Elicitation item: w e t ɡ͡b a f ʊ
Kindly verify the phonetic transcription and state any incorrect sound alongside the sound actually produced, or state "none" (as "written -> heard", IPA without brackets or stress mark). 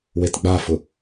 none